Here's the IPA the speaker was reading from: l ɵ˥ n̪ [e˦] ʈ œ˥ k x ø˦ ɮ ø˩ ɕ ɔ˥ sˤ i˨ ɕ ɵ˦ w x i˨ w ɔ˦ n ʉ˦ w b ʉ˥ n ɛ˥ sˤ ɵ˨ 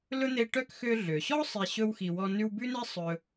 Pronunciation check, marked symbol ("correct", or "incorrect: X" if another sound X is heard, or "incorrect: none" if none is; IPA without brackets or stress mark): correct